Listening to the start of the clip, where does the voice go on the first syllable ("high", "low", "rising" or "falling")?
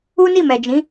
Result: high